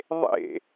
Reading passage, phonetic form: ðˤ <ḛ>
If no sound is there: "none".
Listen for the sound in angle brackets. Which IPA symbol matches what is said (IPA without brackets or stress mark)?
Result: ḛ